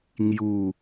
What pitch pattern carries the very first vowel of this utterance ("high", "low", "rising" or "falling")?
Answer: falling